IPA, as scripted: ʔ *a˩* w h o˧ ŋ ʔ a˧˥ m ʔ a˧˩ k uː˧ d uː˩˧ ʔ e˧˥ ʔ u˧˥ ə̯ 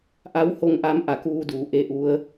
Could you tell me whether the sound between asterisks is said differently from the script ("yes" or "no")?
yes